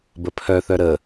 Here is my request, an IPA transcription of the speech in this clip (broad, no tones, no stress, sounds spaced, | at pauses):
b ə pʰ œ θ œ ɾ ə